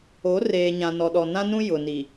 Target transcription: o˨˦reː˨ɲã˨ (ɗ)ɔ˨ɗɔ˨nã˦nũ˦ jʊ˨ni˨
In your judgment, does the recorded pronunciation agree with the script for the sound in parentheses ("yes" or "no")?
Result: no